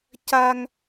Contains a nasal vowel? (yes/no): no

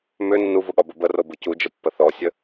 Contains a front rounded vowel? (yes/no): yes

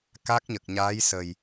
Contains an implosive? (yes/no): no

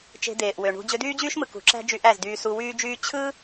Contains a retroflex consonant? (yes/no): yes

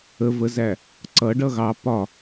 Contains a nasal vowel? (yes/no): no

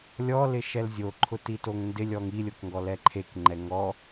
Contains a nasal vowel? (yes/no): no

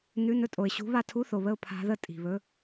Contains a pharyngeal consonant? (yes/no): no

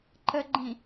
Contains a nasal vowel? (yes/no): yes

